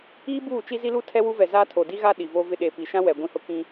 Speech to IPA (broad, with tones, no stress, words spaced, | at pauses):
iː˦buː˦˨ t͡ʃi˦zi˦lu˦ tʰɛ˦wu˦vɛ˨zaː˦ tʰo˨di˦ɣa˦ ɗi˨vo˦ vɪ˦ ɗe˨pi˨ʃã˦wɛ˨ ɡʷĩ˦hʊ˦ kĩ˦